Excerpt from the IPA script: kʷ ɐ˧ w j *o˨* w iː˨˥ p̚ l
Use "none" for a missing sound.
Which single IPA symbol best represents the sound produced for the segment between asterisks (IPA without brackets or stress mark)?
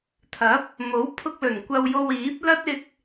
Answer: o˧